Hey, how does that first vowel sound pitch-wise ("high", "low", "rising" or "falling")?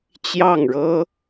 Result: falling